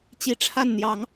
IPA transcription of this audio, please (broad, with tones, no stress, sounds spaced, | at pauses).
t͡ɕ i˨˦ ʈ͡ʂʰ a˥˨ n n̪ j ɑ˨˦ ŋ